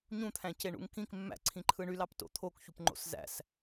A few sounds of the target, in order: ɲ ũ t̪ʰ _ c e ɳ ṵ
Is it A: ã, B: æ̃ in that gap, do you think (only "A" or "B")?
B